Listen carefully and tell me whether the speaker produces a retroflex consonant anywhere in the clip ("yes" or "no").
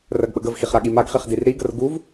no